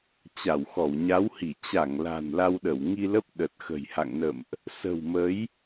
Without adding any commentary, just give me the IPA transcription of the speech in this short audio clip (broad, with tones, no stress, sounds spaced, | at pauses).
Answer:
t͡ɕ a˧˩ w x ɔ˧˩ w ɲ a˨˦ w h i˧˩ t͡ɕ a˧˩ ŋ l a̤˨˩ n l a˧ w ɗ ə˧˩ w ŋ i˧ l ə˦˥ p̚ ɗ ə˨˩ t̚ x ə̤˨˩ j h a̰˧˨ ŋ n ə̰˧˨ m ʔ | s ə̤˨˩ w m ə˨˦ j